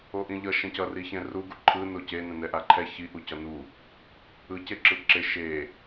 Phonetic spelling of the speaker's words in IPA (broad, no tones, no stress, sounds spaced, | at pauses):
o ʔ ĩ ʎ ʌ ʃ ɛ̃ c ʌ r i ç ɛ̃ r u ɡ u ǃʰ ɯ n o c e n ɛ̃ n ɛ ʔ a ǃʰ ɛ ç i ʔ u c ʌ n u | ɯ c e ǁ ɯ ǁ e ʃ e